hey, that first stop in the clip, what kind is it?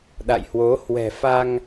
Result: implosive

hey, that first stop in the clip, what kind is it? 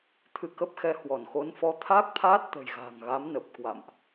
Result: aspirated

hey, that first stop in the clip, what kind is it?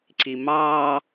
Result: click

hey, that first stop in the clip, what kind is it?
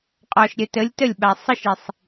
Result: ejective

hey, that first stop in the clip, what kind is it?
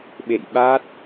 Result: implosive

